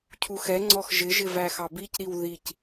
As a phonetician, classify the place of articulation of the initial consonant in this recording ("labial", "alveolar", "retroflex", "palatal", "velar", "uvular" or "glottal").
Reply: palatal